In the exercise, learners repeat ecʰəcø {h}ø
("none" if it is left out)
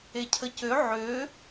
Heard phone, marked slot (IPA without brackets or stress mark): ʕ